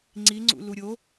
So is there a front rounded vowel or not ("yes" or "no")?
no